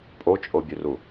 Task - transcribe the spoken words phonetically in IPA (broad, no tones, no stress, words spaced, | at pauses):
pʼot͡ʃʼobʲʉru